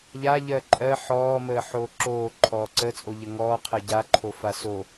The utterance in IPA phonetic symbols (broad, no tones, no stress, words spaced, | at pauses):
ʎa ʎɜǃʼɜ ħɔː məːħoːǁoː ǃʰɔːǀət͡sʼo ʎəŋɔː qʰɜɟaǃʰo faso